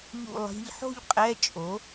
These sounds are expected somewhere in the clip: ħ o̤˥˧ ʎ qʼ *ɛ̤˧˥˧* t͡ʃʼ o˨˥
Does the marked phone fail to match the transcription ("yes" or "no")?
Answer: yes